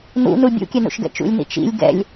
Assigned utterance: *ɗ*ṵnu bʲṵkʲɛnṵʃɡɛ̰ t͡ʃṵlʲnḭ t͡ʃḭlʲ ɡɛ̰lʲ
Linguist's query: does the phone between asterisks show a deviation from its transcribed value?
yes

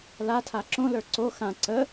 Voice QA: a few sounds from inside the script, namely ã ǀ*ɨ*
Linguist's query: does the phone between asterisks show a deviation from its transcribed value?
yes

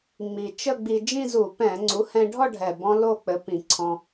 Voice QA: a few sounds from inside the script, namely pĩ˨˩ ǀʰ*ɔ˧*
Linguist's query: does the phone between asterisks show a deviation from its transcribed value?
yes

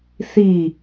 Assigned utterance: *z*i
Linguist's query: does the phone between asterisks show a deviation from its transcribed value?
yes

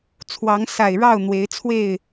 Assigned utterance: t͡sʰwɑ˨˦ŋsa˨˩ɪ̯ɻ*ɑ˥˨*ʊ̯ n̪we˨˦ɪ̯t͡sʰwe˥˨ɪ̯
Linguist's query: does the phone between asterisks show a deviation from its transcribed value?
no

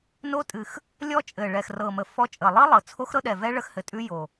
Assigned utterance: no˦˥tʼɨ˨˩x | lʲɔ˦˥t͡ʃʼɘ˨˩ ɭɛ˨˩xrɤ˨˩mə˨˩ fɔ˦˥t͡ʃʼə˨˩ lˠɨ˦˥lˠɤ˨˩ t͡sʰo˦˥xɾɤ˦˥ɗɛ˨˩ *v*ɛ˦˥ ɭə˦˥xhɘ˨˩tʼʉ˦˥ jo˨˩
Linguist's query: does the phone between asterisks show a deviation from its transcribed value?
no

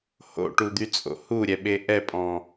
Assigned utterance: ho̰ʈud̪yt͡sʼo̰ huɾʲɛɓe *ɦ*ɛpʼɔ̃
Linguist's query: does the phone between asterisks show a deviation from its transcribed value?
yes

